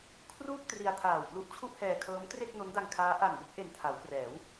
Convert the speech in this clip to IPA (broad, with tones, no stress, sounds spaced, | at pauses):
kʰ r uː˥˩ k̚ t r i˧ a̯ tʰ aː˨˩ w p l u˦˥ ʔ t͡ɕʰ u˥˩ ʔ h ɛː˧ kʰ ɤː˦˥ m t r e˥˩ k̚ n o˦˥ n d a˧ ŋ kʰ aː˦˥ ʔ a˨˩ n b o˥˩ k̚ ʔ e˨˩ n tʰ a˩˦ w k r ɛː˩˦ w